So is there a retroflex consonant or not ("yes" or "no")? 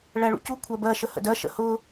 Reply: yes